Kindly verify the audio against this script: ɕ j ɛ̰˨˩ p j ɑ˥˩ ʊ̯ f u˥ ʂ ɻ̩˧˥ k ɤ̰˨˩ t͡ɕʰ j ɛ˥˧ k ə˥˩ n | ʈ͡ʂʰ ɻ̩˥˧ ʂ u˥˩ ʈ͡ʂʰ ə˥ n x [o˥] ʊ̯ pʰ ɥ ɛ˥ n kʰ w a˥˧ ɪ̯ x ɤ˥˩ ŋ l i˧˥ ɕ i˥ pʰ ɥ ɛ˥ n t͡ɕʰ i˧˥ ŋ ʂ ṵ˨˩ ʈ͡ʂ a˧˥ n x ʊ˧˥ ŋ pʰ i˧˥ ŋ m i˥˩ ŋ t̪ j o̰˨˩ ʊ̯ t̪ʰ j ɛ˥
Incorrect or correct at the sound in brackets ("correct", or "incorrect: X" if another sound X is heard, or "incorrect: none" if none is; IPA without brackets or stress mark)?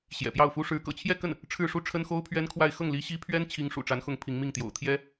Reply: correct